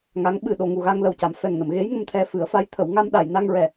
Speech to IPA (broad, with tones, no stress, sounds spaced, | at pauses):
ŋ a˧˥ ŋ ɓ ɨ˨˩ ɗ o˨˩ ŋ u˨˩ ɣ a˧ ŋ l ə˨˩ w c a˨˩˨ m f ɛ˨˩ ŋ n ə˨˩˨ m ɣ e˧˥ j ŋ ə˧ m t̪ʰ ɛ˧ f ɨ˨˩˦ ə̯ f a˧˥ j t̪ʰ ə˨˩˦ w ŋ a˧ m ɗ a˨˩˨ j n a˧ ŋ ɹ ɛ˨˩